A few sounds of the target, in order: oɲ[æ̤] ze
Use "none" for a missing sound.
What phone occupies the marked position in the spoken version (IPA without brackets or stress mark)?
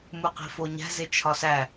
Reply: æ̤